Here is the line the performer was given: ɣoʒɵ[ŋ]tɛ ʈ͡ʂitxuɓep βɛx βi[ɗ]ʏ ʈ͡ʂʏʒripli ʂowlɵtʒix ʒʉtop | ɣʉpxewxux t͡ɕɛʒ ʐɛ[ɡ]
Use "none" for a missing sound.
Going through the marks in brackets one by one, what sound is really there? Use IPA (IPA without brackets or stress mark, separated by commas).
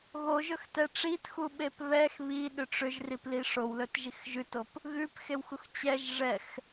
x, ɗ, x